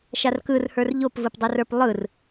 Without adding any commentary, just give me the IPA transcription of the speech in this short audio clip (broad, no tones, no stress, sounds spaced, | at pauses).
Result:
ʃ a r k ɯ r h ə˞ r ʎ o p v ɯ p dˤ o r ə˞ p lˠ ɯ r